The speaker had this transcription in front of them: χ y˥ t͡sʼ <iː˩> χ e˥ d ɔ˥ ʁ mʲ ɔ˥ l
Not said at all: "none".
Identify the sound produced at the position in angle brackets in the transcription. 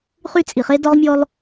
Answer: i˩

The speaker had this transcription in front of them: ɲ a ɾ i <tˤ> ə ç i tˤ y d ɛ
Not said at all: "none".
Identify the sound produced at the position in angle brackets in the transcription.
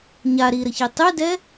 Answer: ɾ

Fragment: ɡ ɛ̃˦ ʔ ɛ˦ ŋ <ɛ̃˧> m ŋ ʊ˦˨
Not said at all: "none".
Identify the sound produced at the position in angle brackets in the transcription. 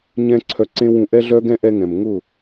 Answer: ɛ̃˨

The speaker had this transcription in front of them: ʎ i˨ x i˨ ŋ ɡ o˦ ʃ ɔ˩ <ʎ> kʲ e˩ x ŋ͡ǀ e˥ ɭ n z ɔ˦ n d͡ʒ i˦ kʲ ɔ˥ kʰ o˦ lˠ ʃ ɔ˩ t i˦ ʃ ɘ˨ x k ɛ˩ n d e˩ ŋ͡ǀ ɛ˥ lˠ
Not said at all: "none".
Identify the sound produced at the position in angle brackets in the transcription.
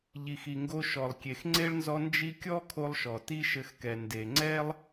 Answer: lˠ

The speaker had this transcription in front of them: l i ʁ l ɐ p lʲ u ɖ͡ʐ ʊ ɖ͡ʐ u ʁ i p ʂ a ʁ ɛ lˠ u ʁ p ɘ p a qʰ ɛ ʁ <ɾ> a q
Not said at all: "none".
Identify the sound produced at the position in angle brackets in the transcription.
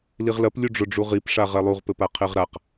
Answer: ɾ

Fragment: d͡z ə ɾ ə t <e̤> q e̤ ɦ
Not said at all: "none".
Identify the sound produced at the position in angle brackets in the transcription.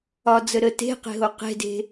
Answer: e̤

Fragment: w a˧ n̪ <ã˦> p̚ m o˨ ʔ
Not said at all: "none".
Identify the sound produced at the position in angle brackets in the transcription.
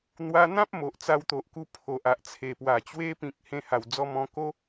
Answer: ã˦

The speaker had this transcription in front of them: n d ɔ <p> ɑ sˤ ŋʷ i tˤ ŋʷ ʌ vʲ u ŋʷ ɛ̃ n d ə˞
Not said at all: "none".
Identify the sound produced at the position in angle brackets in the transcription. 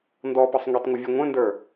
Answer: p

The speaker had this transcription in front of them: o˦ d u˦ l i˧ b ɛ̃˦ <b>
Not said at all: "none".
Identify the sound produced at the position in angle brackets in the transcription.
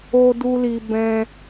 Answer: none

